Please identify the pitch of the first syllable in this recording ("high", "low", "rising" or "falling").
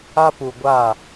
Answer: high